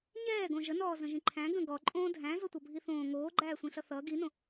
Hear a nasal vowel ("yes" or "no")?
yes